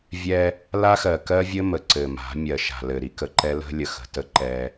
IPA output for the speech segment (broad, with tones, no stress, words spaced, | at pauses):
vʲɛ˦ | la˦xɜ˨kɜ˦vʲɘ˦ mə˨ǀɘ˨ma̤˨˦ mʲɜ˨ʃa̤˨lɘ˨ ɾi˦kə˨ǃɛ˦lə̤˦ lʲə˨xə̤˨ tə˦ ǃɛ˦